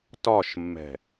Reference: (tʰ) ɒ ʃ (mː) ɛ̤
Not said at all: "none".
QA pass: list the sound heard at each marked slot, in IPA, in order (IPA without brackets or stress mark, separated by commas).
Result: t, mː